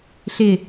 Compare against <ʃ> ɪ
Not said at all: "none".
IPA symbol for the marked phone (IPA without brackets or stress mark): ɬ